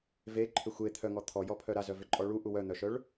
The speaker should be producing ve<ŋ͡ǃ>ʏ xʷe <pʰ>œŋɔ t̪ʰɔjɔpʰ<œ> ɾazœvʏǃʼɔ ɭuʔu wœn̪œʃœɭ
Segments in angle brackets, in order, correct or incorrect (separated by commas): incorrect, incorrect, correct